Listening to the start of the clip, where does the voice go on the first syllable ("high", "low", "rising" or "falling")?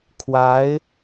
rising